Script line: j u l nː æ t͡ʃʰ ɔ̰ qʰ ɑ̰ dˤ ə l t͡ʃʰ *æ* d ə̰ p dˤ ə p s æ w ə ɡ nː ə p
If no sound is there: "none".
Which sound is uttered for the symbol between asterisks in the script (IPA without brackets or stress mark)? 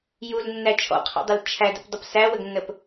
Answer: æ